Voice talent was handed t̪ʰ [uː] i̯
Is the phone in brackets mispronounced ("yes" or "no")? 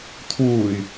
no